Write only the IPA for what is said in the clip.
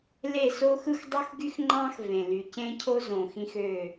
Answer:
le˦˨ soː˦xɯ˦x dˤu˦xɡy˦xŋ͡ǃɑ̃ː˦x vẽ˨ ly˨cẽ˦cʰo˦ zõː˨xĩ˦xø˦˨

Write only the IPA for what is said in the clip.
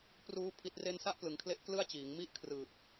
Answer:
pruː˦˥ pʰi˦˥t̚re˥˩n sa˥˩ʔplɯ˩˦ŋkʰle˦˥ʔ klɯ˥˩a̯t͡ɕiː˩˦ŋmi˥˩ʔ kʰrɯː˨˩p̚

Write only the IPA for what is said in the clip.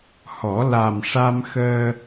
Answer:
hɔ˨˩˦ la˨˩mʂa˧m xəː˧

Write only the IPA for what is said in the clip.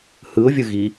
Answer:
hɯʊ̯vʲɯ ɣi

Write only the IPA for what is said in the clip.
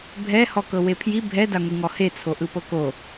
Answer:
bʱɛ hɔkɤwepʰji bʱɛ daŋʷiŋɔhe t͡sʰoʔɯpɤko

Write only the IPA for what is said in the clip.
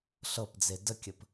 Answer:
ɬɤpd͡ze dəkʲəp

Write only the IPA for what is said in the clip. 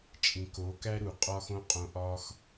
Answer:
t͡ʃʼĩ˨ ko˨˦kæ˦ ɾu˨qʼɒ˦xõ˦qʼõ˧ ʔɒ˦x

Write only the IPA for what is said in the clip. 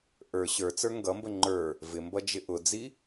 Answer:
ʔə˞ ɕə˞t͡sə˞ ŋɡʌmbə ŋ͡ǃə˞ | vɪmbʌ d͡ʒɪʔʊd͡zi

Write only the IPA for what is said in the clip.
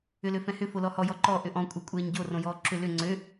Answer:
ʏløfɛ̃hʏ folɔhɔ jɔǃɔ ʔʏʔɔ̃ kʷʼɛkʷʼɛːɲɟo rõjɔːǁʏ lʏ ŋ͡ǀø

